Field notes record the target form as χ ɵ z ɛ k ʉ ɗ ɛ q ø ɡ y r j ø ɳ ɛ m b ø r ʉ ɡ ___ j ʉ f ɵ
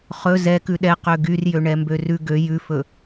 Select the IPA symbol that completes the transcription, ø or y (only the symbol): ø